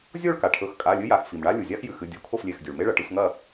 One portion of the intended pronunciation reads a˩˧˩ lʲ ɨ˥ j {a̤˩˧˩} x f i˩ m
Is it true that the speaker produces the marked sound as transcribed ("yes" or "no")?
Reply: no